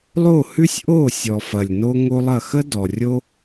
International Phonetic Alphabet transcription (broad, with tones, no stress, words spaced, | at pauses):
lˠo˦˨hʉ˦sʲ ʔo˦˨sʲɔ˨fɐ˨lʲ no˦ ŋo˦lˠɐ˦˨ xə˦dɔ˨ rʲo˦